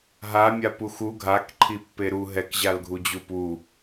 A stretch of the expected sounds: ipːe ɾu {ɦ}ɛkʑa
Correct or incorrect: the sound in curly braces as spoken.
correct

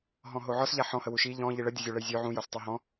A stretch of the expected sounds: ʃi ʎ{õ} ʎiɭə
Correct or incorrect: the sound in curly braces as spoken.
incorrect: ɔ̃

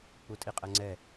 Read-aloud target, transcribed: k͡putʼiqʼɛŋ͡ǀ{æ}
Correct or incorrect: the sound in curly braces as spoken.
incorrect: ɛ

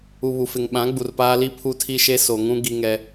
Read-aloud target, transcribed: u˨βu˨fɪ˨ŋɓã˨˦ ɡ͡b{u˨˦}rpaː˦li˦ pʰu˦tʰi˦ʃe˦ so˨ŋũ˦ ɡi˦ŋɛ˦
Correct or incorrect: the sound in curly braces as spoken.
incorrect: u˨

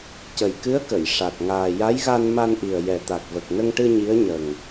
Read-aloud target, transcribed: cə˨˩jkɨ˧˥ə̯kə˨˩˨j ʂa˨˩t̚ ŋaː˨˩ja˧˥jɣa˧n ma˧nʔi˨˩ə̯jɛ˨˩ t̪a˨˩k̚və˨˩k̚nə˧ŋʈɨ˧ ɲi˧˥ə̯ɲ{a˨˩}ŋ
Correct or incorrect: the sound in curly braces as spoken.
incorrect: ə˨˩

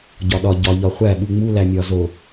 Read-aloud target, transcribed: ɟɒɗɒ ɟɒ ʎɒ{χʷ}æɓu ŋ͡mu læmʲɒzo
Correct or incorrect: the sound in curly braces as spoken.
correct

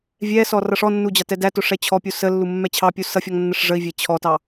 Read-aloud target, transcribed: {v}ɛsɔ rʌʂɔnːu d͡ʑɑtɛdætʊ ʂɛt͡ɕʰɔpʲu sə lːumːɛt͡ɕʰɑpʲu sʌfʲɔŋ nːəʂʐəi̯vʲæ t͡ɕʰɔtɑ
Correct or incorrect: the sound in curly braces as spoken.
incorrect: vʲ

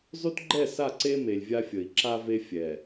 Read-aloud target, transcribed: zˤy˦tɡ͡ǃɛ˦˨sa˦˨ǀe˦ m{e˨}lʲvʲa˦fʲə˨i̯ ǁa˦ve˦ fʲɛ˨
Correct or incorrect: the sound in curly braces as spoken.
correct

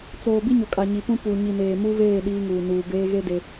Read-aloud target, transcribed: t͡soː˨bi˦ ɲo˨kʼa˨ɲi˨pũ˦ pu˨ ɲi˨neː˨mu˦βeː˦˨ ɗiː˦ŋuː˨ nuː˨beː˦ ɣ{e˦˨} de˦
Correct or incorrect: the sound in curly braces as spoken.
incorrect: e˦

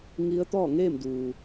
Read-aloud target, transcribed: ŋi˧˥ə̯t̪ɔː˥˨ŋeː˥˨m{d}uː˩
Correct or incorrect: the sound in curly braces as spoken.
correct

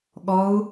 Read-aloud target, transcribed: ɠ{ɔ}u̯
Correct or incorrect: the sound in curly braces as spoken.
correct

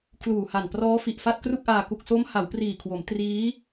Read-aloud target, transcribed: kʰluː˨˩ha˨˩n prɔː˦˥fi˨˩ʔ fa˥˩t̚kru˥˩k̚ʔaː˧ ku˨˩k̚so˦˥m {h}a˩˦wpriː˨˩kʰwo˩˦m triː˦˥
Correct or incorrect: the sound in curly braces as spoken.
correct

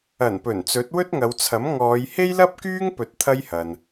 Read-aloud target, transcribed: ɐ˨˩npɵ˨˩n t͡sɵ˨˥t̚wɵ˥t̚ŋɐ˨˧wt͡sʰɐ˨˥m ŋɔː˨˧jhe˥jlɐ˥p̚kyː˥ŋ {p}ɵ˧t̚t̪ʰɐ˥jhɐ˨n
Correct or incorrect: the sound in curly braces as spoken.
correct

